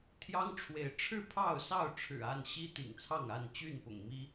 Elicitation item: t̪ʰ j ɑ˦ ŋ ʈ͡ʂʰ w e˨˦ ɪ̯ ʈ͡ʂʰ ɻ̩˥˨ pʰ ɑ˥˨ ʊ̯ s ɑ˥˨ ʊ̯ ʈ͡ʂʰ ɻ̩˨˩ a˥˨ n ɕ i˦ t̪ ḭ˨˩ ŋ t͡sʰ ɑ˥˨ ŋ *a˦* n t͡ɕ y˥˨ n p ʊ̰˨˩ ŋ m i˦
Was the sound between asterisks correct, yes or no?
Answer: no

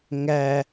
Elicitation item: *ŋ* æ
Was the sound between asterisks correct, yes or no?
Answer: yes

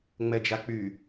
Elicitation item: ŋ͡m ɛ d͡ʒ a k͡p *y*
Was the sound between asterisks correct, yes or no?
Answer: yes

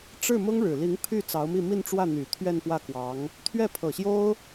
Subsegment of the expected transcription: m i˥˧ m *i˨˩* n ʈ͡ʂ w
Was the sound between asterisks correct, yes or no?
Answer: no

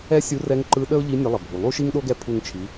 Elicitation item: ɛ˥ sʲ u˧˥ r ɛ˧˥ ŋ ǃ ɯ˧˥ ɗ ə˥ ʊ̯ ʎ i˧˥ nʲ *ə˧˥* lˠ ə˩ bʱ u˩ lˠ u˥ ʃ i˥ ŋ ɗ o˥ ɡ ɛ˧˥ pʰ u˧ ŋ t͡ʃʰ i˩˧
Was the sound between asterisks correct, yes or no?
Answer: yes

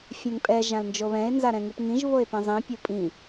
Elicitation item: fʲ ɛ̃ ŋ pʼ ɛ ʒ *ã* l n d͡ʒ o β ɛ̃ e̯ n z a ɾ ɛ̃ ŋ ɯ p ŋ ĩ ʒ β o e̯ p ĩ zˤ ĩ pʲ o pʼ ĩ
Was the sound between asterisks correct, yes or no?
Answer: yes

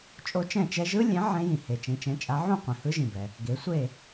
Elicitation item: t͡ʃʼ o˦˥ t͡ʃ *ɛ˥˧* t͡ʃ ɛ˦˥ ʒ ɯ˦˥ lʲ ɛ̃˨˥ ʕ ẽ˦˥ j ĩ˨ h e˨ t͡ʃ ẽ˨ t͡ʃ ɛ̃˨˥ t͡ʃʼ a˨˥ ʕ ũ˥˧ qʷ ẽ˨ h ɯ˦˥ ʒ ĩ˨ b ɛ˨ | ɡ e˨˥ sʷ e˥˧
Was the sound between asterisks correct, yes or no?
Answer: no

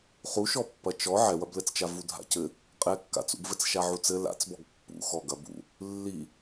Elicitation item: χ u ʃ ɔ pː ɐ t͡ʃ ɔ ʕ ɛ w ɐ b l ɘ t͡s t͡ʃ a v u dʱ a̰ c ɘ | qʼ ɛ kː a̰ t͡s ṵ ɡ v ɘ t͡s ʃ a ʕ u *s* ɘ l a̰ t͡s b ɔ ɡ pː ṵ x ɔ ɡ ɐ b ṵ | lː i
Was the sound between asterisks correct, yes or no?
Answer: no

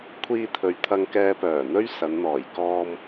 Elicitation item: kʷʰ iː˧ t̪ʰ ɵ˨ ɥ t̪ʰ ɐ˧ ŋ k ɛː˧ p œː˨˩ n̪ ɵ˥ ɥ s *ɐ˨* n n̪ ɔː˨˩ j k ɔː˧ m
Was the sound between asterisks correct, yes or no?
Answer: no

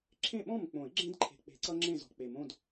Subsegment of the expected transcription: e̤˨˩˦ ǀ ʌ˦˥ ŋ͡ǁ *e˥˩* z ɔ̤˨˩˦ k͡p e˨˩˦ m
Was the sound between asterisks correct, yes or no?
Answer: no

